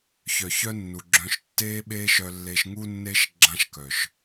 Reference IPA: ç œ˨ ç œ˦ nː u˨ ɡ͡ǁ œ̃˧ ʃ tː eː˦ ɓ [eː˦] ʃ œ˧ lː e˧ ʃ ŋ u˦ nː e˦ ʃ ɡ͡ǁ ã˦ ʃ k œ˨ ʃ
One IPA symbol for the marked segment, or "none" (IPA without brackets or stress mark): eː˦